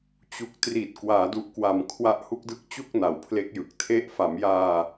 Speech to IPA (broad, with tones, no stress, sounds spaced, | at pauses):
t͡ɕ u˨˩ k̚ t r i˨˩ t̚ k w aː˩˦ d u˨˩ ʔ k w a˨˩ m kʰ w a˦˥ ʔ h u˥˩ k̚ d ɯ˥˩ k̚ t͡ɕ u˥˩ k̚ n a˩˦ w pʰ l e˦˥ k̚ j ɯ˨˩ k̚ tʰ e˦˥ ʔ f a˩˦ m j aː˧